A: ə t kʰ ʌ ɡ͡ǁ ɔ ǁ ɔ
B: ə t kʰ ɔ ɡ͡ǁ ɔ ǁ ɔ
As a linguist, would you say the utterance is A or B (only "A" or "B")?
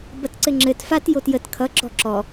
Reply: A